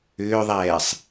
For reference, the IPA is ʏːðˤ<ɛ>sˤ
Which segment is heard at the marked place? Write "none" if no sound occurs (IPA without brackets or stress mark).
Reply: ɛː